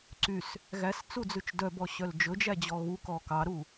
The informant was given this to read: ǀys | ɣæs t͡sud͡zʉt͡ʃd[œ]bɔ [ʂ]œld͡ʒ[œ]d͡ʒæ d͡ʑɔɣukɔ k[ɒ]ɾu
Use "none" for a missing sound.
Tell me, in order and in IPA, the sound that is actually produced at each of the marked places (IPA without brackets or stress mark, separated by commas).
œ, ɕ, ɵ, ɑ